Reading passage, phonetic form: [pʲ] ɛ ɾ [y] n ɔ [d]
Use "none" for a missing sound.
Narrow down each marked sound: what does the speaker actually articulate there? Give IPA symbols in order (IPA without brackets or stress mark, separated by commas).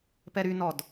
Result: p, y, d